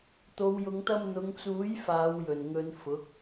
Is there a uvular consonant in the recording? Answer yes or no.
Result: no